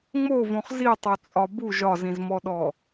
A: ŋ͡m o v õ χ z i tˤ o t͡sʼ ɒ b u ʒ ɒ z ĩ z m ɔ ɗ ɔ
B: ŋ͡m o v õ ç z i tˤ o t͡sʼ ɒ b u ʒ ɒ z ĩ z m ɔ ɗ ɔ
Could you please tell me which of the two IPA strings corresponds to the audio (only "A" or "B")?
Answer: A